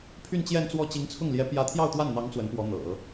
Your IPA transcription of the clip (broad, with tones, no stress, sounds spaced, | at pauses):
pʰ y˥˧ n t͡ɕ j ɛ˥˧ n t͡s w ɔ˥˩ t͡ɕ i˧˥ ŋ t͡sʰ ʊ˥˩ ŋ l j ɛ˧˥ p j ä˧˥ t̪ʰ j ɑ˥˧ ʊ̯ t̪ w a˥˩ n n̪ ɑ˧˥ ŋ t͡s w ə˧˥ n p w ɔ˧˥ n̪ ɤ̰˨˩˦